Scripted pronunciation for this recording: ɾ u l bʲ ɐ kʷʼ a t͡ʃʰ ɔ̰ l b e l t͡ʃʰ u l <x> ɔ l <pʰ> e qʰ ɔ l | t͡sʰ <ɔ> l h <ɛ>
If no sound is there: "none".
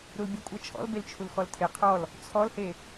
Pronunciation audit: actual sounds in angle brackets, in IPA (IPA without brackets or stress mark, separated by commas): x, tʰ, ɔ, e